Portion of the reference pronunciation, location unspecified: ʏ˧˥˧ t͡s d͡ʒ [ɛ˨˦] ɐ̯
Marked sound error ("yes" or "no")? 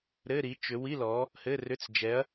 no